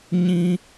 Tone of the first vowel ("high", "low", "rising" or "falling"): high